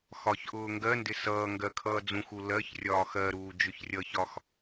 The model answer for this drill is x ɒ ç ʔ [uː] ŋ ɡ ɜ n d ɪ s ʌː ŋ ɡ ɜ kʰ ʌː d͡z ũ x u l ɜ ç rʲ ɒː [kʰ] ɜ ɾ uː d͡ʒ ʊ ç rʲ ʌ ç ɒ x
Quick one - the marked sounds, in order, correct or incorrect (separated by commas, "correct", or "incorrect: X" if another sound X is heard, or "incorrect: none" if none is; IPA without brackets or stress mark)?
incorrect: ʊː, incorrect: x